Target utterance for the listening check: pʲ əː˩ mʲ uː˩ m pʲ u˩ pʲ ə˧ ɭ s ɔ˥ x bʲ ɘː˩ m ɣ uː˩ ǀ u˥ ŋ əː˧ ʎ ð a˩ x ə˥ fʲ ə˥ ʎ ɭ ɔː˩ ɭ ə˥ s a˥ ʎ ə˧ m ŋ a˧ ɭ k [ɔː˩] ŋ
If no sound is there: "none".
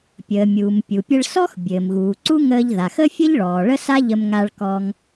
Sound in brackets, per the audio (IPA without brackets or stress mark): ɔː˧